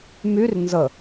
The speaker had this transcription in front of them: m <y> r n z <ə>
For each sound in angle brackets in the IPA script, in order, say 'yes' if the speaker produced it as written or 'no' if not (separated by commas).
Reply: yes, yes